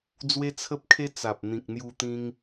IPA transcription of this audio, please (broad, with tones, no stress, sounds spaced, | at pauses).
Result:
d͡z w e˦ t͡sʰ ə˦ p̚ kʰ e˦ t͡s a˨ p̚ n̪ ĩ˨ k̚ n̪ j u˧ t̪ ĩ˧ ŋ